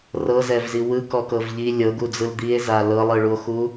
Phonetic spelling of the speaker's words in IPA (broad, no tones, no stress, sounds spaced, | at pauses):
r ɤ z ɛ v z i w ɯ k ɔ k ɤ v ʎ i lʲ ɤ ɡ u d͡z ɯ l d̪ i e̯ z a l ɤ lˠ ɯ ɭ u o̯ x u